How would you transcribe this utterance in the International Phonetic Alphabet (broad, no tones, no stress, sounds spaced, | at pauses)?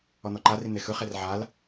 ɔ n̪ ɔ ǃ a r i n̪ e x ɯ χ e r ʕ a l